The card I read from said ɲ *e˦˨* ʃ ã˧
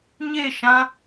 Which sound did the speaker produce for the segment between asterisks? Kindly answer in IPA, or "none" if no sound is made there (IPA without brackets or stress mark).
e˦˨